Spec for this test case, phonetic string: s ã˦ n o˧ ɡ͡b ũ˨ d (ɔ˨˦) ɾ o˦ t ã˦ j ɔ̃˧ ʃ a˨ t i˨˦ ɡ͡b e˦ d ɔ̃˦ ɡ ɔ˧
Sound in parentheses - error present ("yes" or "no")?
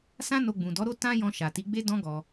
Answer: no